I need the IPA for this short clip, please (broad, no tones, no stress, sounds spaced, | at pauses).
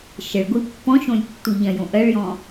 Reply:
ʃ ə ɭ ɡʷ i pː ɔ̃ ʃ õ lʲ tː u ʎ ɐ̃ j õ ʔ ɜ ɭ j ɔ̃